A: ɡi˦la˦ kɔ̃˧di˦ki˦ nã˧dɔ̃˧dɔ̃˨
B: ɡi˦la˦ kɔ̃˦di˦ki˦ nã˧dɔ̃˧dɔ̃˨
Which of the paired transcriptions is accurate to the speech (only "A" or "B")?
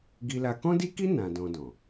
B